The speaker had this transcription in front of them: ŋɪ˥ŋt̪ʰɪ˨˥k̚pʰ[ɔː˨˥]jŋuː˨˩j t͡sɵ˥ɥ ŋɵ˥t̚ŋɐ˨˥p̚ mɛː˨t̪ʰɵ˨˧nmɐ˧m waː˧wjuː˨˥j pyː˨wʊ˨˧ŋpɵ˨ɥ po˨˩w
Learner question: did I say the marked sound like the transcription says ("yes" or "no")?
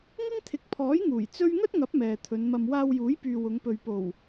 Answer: yes